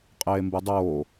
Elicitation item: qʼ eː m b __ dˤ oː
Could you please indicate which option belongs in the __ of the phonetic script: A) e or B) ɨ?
B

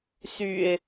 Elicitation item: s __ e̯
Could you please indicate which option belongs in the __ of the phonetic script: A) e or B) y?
B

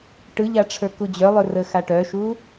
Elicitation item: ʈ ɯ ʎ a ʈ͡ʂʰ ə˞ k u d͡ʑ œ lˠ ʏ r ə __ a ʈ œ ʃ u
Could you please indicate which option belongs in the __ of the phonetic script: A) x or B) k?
A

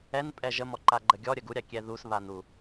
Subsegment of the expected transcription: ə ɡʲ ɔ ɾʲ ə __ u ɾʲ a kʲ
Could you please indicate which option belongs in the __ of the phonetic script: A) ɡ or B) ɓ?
A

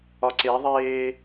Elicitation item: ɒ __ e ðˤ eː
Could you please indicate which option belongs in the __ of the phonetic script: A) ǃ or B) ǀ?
B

